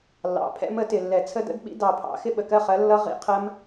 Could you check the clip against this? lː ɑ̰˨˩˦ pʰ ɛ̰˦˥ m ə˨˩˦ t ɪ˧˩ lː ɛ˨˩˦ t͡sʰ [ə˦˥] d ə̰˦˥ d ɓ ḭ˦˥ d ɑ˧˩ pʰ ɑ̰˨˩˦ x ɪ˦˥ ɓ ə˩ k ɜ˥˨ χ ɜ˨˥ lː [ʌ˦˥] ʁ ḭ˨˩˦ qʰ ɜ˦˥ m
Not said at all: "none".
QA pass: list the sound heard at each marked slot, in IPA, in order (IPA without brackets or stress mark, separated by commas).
ə˦˥, ʌ˦˥